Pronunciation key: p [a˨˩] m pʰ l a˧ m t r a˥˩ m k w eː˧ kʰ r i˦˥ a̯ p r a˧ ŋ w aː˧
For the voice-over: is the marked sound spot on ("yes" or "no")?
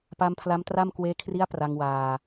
no